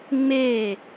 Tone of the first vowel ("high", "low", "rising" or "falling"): falling